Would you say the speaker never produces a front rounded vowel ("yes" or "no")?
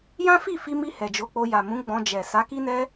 yes